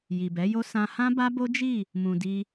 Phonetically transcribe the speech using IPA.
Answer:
ji˨bɛ˨˦jo˦ sã˧ hã˦ba˦bo˦ d͡ʒi˦˨ | mũ˨di˧

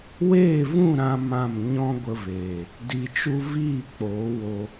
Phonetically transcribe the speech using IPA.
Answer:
weː˦˨vũ˦˨ ɾã˦mã˦˨m ɲɔ̃˦ɡʷə˧veː˨ | di˧t͡ʃu˦ viː˦˨k͡poː˨˦wo˧

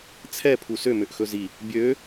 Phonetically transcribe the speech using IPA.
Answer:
t͡sʰɛ pʰusømøʔ xɵzi | bʲø

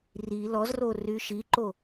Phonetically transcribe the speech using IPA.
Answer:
ri lɔzro ryʃiǃo

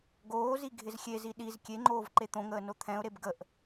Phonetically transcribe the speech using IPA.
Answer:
ɡoːzi ɡʱɪzxʲezi ɗiz kʲeŋ͡ǃoːv ǃet̪õŋəːno t̪ʰɛ̃ʊ̯ɾeb ɡəʔ

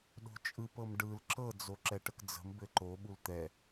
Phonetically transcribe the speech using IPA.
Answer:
ɗo̤t͡ʃʼɯpɤm ɖɯl ǁɤd͡zo ǁɛʈəkd͡zə̤m bɘǃo ɓult̪ɛ

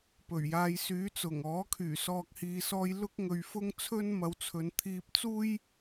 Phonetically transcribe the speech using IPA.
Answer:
pɵ˨˩ɥjaː˨˧j syː˨˥t͡sʊ˨˩ŋɔː˨˥kʰyː˨˩ sɔː˨k̚hiː˨sɔː˧j lʊ˥k̚ŋɵ˧ɥfʊ˥ŋ t͡sʰɵ˥nmɐ˨˧wt͡sʰɵ˨˧n t̪ʰiː˧p̚t͡suː˥j

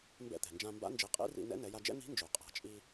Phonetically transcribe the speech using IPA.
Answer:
mbɛ̰˧t̪ɛ̤˩nd͡ʒã˧mba̰˧˥ nd͡ʒi˩˧qʼḭ˧˥rḭ˧ nɛ̰˧˥nɛ˩˧ja˧d͡ʒɛ̰˥ n̪i̤˧˥nd͡ʒø˩qʼa̤˩˧ t͡ʃʼi˧

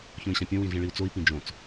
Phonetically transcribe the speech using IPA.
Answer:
çõi̯ɕãpʲõ wĩɮĩɭiu̯t͡soi̯ pĩd͡ʒõt͡s

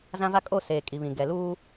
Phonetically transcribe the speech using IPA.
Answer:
zã˦va˦ kʼo˦˨seː˨ kʼi˨βĩ˨ ɡɛ˨ luː˦

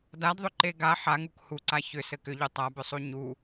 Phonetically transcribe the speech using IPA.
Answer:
dadðˤʏǃe ɡa ħaŋuk huǀa çʏ sɘkʏʎu tˤabʏsˤu ɲu

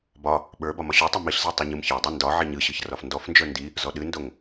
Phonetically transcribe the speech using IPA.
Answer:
bɒ | ɓə˞ bɒmɒɕotˤɨ miɬzə˞ tˤoɲɯmçə˞dˤi ndɒ ʕiɲɯɕɯç rɒfndɔfnd͡ʒə˞ ndi | zɔɗɨndoŋ

